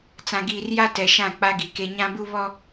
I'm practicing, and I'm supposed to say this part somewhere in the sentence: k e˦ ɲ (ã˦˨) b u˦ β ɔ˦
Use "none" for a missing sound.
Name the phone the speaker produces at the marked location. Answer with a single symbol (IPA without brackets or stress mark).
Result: ã˦